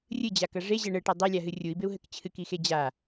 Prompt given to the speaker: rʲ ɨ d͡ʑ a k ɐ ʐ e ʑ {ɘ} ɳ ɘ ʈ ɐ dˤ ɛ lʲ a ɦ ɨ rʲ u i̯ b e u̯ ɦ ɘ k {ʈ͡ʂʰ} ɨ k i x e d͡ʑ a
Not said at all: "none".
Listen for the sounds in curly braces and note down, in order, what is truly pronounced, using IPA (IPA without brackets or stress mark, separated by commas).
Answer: ɛ, t͡ɕʰ